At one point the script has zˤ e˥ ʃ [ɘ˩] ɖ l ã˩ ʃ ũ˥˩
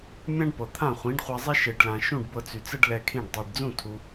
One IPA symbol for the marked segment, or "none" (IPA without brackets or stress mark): e˩